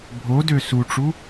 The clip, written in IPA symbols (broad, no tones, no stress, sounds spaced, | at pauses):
bʱ o d ø s u ʈ͡ʂ u